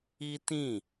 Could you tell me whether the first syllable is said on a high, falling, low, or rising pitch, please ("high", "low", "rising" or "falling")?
high